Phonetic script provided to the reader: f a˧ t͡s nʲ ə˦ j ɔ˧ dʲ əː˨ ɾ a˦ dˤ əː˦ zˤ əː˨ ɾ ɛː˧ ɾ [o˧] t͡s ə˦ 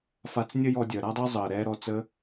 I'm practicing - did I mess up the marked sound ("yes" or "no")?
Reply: yes